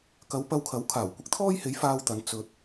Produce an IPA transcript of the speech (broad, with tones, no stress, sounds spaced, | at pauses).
k ɐ˨˧ w p ɐ˧ w kʰ ɐ˨˥ w kʰ aː˨˩ w kʷ ɪ˧ k̚ t̪ʰ ɔː˥ j h e˨˥ j f aː˧ w t̪ ɐ˨˧ n t͡s ɵ˧ t̚